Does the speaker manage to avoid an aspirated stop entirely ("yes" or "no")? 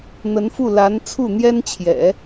no